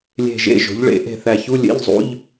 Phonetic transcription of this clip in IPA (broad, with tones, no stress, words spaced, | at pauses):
lʲe̤˧˩ʒḛ˧˥˧ ʒo̤˩˥ʎɭḛ˩˥ ʔe̤˧˩θæ˧˩çu˧˥˧ lʲḛ˧˥˧ʎzˤṵ˧˥˧ʎ